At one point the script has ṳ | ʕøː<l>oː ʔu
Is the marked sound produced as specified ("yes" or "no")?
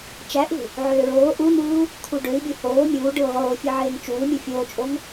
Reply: no